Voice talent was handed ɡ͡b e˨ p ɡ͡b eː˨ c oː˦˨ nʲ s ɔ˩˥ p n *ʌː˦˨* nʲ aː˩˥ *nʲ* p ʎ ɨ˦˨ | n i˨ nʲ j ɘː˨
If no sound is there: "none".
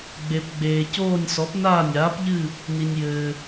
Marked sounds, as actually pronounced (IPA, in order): aː˦˨, none

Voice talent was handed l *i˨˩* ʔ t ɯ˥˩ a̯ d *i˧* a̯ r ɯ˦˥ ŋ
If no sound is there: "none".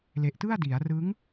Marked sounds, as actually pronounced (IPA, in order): e˨˩, i˩˦

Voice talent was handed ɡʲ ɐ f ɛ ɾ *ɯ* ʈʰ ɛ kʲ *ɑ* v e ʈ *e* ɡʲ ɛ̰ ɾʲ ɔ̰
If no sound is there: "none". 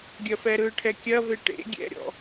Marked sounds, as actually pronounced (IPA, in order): ɯ, ɐ, ḛ

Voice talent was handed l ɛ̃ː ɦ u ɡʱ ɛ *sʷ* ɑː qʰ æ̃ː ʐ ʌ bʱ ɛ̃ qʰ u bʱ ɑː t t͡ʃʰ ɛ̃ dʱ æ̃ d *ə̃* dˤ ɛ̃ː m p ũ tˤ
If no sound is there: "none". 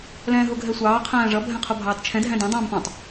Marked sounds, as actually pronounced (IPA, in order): sʷ, ɛ̃

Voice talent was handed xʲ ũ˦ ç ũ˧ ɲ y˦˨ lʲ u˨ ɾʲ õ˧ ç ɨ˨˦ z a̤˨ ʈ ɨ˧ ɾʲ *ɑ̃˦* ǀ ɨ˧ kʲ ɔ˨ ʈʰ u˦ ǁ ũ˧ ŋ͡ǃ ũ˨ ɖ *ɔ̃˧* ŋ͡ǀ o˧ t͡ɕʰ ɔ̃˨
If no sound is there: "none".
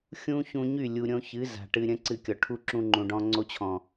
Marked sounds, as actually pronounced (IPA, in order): ə̃˦, ɔ̃˧

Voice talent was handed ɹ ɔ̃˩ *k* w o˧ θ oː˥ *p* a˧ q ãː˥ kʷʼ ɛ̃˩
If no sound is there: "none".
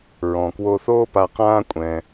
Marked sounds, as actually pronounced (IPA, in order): k, p

